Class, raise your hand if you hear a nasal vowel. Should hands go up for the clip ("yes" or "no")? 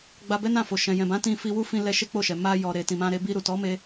yes